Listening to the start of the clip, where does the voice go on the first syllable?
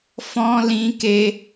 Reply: high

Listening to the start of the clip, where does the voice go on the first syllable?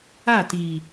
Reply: falling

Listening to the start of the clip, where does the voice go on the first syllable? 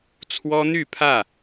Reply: high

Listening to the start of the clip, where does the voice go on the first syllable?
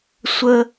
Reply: high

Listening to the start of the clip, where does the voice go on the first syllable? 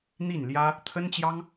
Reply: falling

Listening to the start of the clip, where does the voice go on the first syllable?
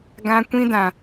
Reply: high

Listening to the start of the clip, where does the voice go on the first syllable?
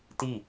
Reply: falling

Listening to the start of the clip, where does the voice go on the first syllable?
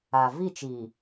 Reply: low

